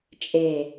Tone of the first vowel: low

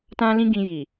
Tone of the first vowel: high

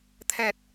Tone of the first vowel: low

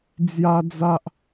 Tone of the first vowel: high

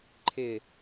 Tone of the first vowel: falling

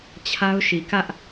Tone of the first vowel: high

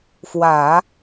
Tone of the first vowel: low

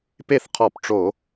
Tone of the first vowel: falling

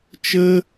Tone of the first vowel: high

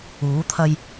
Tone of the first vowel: rising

